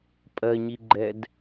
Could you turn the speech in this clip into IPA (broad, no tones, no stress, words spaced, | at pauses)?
pʼɜɲiɡ͡ǃɛd